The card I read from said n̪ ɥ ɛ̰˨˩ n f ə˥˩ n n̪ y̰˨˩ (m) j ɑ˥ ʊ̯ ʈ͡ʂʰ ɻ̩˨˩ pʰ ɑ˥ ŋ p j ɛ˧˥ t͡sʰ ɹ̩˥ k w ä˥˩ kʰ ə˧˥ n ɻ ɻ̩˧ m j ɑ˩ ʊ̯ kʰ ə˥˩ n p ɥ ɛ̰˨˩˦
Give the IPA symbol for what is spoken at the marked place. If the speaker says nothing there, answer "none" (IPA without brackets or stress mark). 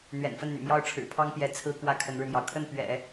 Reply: m